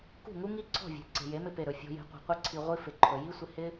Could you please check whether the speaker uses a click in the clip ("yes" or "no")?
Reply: yes